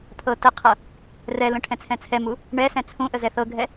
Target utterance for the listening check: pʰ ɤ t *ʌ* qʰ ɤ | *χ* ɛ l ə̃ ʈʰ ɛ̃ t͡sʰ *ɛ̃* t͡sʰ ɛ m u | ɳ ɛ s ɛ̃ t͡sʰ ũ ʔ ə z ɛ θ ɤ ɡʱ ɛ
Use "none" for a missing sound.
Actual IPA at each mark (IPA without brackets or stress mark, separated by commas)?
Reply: ə, r, ɛ̃